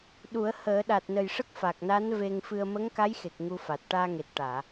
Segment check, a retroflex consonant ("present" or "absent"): present